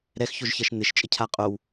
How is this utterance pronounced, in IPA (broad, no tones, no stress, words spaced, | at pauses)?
ɾɛxçoʒçɐʃ n̪ɪʃt͡ʃʼəcʰa qʼow